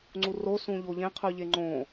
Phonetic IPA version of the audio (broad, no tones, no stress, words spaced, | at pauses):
ŋ͡ǀuro sũʎoʎẽ qʰʉʎeŋ͡ǃõ